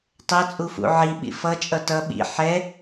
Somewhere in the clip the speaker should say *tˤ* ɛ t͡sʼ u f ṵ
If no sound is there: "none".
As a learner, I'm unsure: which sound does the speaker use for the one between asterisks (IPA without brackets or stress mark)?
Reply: tˤ